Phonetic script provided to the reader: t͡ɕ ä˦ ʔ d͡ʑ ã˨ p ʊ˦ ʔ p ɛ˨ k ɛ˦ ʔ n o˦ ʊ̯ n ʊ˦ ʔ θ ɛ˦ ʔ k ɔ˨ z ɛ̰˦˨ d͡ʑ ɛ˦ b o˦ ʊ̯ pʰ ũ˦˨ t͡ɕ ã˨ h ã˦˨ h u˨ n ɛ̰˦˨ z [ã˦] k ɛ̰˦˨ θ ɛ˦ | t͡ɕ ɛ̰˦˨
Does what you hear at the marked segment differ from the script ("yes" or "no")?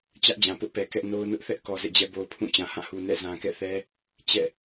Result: yes